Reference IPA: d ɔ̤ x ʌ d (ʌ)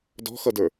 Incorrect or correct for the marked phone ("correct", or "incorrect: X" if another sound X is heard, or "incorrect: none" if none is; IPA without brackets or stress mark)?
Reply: incorrect: ə˞